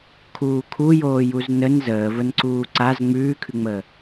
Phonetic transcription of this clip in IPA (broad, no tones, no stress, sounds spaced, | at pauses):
kʰ uː kʰ u j oː j u z n ə n z əː v ə n ǀ uː ǀ a z ŋ͡m ʉː kʰ ʉ ŋ͡m əː